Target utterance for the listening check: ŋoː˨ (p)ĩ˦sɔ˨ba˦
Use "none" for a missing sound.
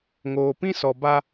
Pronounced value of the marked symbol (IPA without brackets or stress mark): p